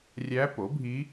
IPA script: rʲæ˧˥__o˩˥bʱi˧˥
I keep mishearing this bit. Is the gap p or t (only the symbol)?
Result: p